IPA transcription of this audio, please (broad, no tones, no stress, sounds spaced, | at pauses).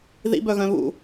ð ḭ b œ ɣ œ̃ β ṵ